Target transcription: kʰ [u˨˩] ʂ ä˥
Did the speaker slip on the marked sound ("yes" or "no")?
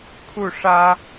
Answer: yes